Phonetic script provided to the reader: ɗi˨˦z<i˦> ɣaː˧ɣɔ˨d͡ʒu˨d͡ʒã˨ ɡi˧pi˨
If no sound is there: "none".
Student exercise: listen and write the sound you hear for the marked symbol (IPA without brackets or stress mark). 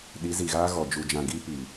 i˨